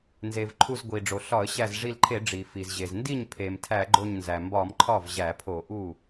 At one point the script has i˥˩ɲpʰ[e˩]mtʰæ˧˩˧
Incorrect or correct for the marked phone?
correct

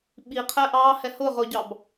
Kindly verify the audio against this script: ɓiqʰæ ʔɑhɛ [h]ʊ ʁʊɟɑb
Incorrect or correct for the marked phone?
correct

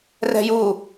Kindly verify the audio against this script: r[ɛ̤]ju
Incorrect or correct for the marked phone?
correct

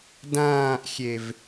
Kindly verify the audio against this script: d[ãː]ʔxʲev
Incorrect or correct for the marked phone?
correct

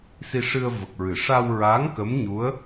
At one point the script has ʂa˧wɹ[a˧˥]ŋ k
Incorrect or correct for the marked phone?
correct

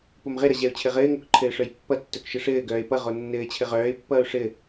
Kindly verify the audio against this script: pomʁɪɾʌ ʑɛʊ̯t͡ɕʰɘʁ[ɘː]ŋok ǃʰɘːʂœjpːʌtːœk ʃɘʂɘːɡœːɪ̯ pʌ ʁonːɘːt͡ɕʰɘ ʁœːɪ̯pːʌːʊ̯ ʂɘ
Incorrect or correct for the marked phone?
correct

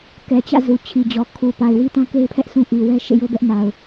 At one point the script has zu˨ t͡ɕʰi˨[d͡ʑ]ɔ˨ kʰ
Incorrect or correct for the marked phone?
correct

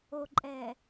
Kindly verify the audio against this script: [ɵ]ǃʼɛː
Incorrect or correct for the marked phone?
incorrect: o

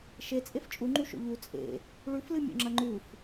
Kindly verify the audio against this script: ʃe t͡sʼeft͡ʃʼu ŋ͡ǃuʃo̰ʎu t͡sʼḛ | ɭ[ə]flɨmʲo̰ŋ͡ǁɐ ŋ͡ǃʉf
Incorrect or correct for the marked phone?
incorrect: ʉ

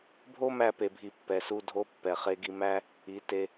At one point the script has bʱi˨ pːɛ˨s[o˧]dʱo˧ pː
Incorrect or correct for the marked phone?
incorrect: u˧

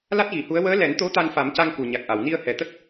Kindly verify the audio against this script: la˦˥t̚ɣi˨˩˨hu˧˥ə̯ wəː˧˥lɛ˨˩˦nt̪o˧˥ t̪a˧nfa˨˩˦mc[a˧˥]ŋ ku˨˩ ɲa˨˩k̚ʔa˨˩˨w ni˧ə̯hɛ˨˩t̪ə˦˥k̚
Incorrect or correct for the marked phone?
incorrect: a˧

